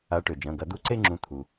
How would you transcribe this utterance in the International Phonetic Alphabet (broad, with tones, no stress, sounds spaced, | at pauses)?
a˨˦ ʈ ø˩ d͡ʒ ɐ̃˩˧˩ ɡ ɐ˨˩˦ d̪ u˧˥˧ ǀ e˥˧ ŋ͡ǁ ũ˨˦ t̪ʰ u˩